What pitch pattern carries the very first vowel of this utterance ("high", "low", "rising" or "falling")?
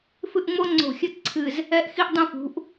falling